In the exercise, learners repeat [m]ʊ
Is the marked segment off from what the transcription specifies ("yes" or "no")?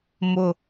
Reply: no